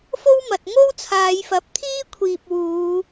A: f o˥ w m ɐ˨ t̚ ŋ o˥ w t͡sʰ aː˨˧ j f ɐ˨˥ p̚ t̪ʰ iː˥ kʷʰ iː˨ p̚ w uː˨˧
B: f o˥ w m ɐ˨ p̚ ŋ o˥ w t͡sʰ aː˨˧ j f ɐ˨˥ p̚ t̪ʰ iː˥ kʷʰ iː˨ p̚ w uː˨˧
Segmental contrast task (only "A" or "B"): A